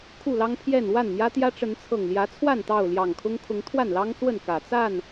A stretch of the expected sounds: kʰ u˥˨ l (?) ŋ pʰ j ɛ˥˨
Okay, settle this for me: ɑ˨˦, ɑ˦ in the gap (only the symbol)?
ɑ˦